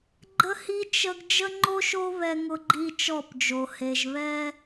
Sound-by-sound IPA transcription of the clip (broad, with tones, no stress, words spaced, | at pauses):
ɡ͡ǃə˦hi˦ t͡ʃə˦ɡ d͡ʒə˦ŋ͡ǃo˦ʃo˦ βɛ˦ ŋʊ˦ɡ͡ǃi˦ t͡ʃɔ˦˨pd͡ʒo˨ he˨ʒ βɛ˦